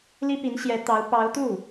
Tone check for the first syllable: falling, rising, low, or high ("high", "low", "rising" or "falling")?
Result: high